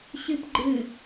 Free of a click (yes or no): no